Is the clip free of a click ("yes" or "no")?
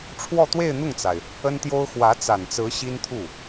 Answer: yes